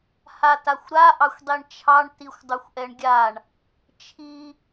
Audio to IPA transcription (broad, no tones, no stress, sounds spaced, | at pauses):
h a t a xʷ ɾ a ʔ ɑ xʷ dˤ i ɳ t͡ʃʰ ɑ ɳ t i xʷ dˤ u xʷ ʔ ɛ ɳ ɡʲ a ɳ | t͡ʃʰ i